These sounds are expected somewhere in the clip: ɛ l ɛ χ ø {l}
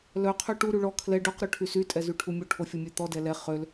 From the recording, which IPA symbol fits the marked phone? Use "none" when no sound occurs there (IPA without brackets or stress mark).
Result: l